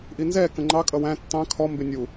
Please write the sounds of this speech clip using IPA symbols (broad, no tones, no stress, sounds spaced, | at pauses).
ʔ i n z ɛ k ə̃ ŋ͡ǃ ɑ kʼ ʌ w æ̃ tː ɑ̃ kʰ ɔ m b ɪ nʲ u